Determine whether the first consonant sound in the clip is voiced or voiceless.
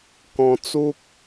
voiceless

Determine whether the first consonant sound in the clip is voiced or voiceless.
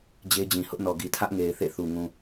voiced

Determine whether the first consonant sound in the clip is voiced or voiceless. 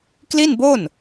voiceless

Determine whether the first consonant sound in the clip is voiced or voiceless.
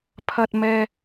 voiceless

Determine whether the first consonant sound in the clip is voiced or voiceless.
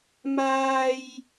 voiced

